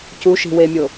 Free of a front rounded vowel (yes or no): yes